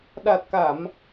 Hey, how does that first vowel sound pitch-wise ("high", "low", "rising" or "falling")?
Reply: low